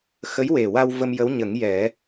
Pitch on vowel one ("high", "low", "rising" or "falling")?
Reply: rising